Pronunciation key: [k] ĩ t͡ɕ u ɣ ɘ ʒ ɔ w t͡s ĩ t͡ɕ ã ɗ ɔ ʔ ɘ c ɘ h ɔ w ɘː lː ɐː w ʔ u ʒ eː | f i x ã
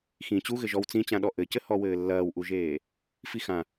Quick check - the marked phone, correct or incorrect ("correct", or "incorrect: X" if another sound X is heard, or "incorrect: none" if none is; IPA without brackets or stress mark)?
incorrect: x